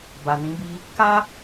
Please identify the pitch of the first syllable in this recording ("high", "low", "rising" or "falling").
low